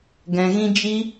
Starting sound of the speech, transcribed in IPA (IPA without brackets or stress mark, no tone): ɡ